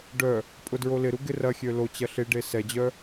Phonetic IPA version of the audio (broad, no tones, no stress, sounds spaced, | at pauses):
ɖ œ | pʼ ʊ d ɹ o l ɪ ɾ u ɡ ɪ r ɐ xʲ ø l o t͡ɕ ɐ ɬ ɪ ɖ e s ɛ d͡ʑ œ